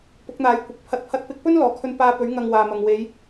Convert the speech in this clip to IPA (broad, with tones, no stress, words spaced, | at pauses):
pʊ˨˥k̚n̪aː˨˥j kʷɪ˨k̚ pʰɐ˨t̚pʰɐ˨˥t̚pɪ˨˥k̚pɵ˥n lɔː˨kʰɵ˥n paː˧pɵ˨˥ɥ ŋɐ˧ŋwaː˨mɐ˨ŋ we˨˧j